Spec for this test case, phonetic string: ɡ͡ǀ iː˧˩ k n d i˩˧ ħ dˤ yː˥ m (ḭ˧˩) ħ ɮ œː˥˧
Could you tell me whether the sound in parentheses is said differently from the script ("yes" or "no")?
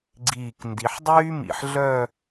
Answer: no